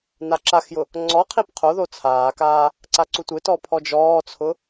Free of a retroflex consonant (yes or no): yes